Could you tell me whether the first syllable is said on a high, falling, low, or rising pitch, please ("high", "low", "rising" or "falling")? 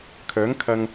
rising